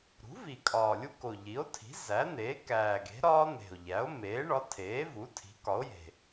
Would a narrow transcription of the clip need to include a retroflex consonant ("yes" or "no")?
yes